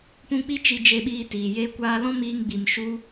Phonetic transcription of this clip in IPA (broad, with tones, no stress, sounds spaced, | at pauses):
p ũ˧ k͡p i˦ t͡ʃ i˧ d͡ʒ e˧ ɓ iː˧ t iː˨ j e˧ kʷ aː˧ l ɔ̃˦ m iː˧ ŋ ɡ͡b i˨ m ʃ u˧